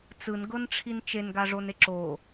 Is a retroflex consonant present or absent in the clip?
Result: present